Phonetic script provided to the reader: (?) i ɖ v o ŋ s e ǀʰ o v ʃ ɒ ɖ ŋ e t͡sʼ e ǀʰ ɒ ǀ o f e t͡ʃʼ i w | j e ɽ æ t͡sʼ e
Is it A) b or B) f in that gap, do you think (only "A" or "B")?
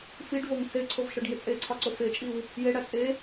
B